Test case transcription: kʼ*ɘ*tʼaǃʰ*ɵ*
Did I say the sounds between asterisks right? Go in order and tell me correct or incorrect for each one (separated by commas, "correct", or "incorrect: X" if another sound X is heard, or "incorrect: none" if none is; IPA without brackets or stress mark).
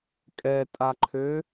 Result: incorrect: ɛ, incorrect: ø